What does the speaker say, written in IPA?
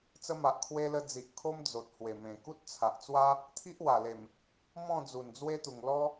t͡s ə˧ m a˨ ʔ kʰ w e˧ l ə˧ d͡z i˨ ʔ kʰ o˦ m d͡z o˨ t̚ h w e˨˩ m ẽ˨˩ k u˦ t̚ t͡sʰ a˨ ʔ t͡s w a˦ | t̪ʰ i˦ ʔ w a˨˩ l e˨˩ m | m ɔ̃˥˧ d͡z u˨˩ n d͡z w e˦ t̪ u˨˩ ŋ l ɔ˦

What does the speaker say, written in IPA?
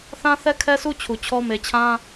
θ ã˦ θ ɛ˦ kʰ ɛ˦ s u˦ t͡ɕʰ u˨ t͡ɕʰ ɔ˦ m e˨ t͡ɕʰ ã˦

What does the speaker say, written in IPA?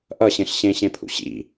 ʔ ʌ ɕ ẽ ɬ ɕ ẽ ɕ ẽ pʰ ṵ ɕ ḭ

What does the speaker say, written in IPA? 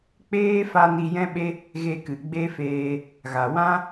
k͡p eː˦ f a˧ n i˧ j ɛ̃˦ ɓ e˦ | ɣ e˧ k ɨ˨ ɡ͡b e˦ f eː˧ | ɣ a˨ w ã˦

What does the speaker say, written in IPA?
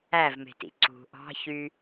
æ v m e̤ t ḭ ǀ ṳ ʔ ɑ̤ ç y

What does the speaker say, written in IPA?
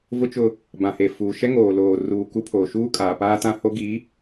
v ʊ˦ t͡ʃ ʊ˦ | b ã˨ h e˨ f uː˨ ʃ ɛ˦ ŋ oː˨ l oː˨ r uː˨ k u˦ pʰ oː˨ ʃ uː˦ kʼ aː˨ p aː˦ t ã˦ h o˦ ɡ i˨˦

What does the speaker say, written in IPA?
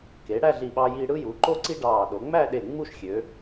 k e˩˧ ɽ æ˥˧ ɮ i˧˩ ɓ ɑ˧ j iː˧ ɽ ɯ˧ j u˩˧ ǃ o˥ ǀ i˥ ɖ ɑː˧˩ ɗ o˩˧ ŋ͡m æ˥˧ ɗ e˧˩ ŋ͡m u˥˧ ʃ xʲ ø˩˧

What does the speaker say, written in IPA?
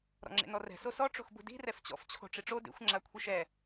ɾ ɔ̰ ŋ͡ǁ ḛ n ɔ r ɛ̤ s o s ɔ ʈ͡ʂ o̤ x b ṳ d i̤ r ɛ f t͡ɕ ɔ̰ f t͡ɕʰ o̤ ʈ͡ʂ i ʈ͡ʂ o d ḛ xʷ ŋ͡ǁ a kʷʰ ɨ ʃ ɛ

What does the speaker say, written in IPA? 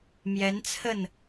m j ɛ˧˥ n t͡sʰ ə˥˩ n

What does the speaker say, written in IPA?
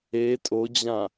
e tʼ o d͡ʑ ã

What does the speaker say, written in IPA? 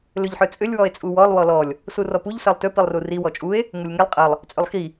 l ʏ ʎ ħ ʏ t͡sʼ ʏ lʲ w ɔ e̯ t͡sʼ u w ɔ lˠ w ɔ l ɔ lʲ | s u r ɔ p u ʎ s ɜ lˠ t ʏ p i lˠ r u r i w ɔ t͡ʃʼ u e̯ | ŋ u lʲ ŋ i lˠ qʼ ɜ lˠ | t͡sʼ ʏ lˠ x i

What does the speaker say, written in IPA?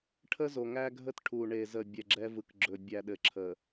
ʈʰ ə˦ z o˨ ŋ æ˦ ɡʱ ə˦ t ʈʰ u˨ ɳ e˨ z ə˨ bʲ ɛ˨ ɡ͡ǁ ɛ˦ v ɯ˨ k ɡ͡ǁ ɵ˨ bʲ æ˦˨ ɗ ɘ˨ ǁʰ ə˨

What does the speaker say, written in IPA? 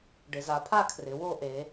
ɖ ɪ˩˧ z a˩˧ pʰ a˥˧ kʰ r ɪ˩˧ w o˥˧ ʔ e˩˧

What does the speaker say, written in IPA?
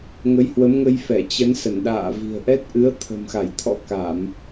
ŋ ə˨˦ j h w ə˨˦ m ŋ ə˧ j f ɛ˧˩ t͡ɕ ə˨˦ n s ə˧˩ n ɗ a̰ː˧˨ v i̤˨˩ ə̯ ʔ ɛ˦˥ t̚ ʔ ɨ˨˦ ə̯ t̪ʰ ə̤˨˩ m x a˧˩ j t̪ʰ ɔ̰˧˥ k a˧˩˨ m

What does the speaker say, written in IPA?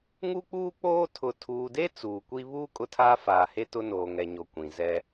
ŋ u˦ k͡p uː˦ k͡p oː˦ tʰ ʊ˨ tʰ uː˨ d e˦ t͡s uː˨ kʷ i˦ β uː˦ kʼ ʊ˦ tʰ aː˦ f aː˨ h e˦ t ʊ˦ n oː˨ ŋ ɛ˨ ɲ o˨ kʷ ĩ˨ z ɛ˦

